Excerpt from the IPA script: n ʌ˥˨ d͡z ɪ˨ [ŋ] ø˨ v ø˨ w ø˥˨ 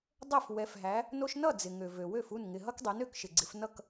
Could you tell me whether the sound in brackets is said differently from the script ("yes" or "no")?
no